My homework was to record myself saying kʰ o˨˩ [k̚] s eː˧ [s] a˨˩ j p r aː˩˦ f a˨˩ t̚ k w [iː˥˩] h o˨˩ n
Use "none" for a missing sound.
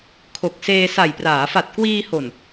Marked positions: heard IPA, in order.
k̚, s, iː˧

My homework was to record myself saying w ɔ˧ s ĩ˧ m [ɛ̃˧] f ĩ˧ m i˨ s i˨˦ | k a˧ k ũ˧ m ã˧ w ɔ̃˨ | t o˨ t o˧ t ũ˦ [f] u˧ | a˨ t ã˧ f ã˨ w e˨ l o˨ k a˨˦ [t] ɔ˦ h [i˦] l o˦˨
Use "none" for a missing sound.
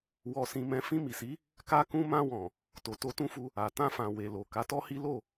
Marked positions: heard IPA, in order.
ɛ̃˧, f, t, i˦

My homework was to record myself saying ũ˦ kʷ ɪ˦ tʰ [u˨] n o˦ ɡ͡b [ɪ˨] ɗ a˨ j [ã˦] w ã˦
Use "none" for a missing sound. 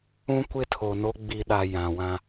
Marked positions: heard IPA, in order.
o˨, i˨, ã˨

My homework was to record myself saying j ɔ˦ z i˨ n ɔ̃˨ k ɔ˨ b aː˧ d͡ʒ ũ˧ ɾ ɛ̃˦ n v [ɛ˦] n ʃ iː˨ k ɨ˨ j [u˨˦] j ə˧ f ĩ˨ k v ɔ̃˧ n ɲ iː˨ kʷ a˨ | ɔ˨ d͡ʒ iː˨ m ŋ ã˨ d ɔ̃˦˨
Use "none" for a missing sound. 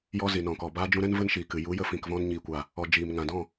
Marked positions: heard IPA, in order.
ə˦, u˨˦

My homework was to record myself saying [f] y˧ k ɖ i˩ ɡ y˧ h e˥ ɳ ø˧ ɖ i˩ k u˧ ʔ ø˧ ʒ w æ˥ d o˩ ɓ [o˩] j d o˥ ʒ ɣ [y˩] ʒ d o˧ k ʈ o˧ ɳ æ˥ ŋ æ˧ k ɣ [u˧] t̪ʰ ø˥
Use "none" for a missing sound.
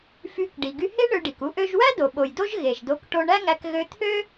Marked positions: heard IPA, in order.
f, o˩, e˩, ø˧

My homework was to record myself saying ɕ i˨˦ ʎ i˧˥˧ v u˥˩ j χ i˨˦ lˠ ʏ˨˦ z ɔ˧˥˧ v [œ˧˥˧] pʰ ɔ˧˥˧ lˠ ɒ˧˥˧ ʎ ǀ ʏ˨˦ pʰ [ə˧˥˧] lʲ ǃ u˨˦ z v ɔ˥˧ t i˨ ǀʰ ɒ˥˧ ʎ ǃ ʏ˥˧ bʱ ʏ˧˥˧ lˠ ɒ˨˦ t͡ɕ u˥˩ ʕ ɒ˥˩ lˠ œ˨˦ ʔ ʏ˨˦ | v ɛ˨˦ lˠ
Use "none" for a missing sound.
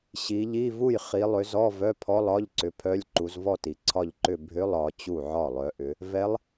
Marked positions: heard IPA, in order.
œ˧˥˧, œ˧˥˧

